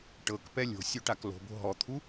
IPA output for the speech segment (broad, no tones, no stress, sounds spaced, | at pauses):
ʈ ɤ k p ɛ lʲ o̤ sʲ o ʈ a k l o̤ b o̤ ɦ ɔ t̪ʰ u